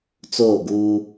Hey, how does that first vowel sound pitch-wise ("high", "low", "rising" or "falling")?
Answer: falling